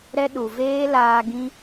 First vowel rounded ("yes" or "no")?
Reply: no